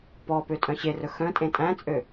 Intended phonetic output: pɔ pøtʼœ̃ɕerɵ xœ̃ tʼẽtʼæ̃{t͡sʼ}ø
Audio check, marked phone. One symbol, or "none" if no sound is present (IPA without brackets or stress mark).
t͡sʼ